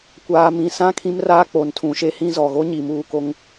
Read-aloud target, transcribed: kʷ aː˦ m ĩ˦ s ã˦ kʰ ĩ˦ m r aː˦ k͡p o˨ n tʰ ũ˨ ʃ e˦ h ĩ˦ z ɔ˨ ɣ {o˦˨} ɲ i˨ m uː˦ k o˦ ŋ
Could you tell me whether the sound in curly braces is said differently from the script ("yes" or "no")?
yes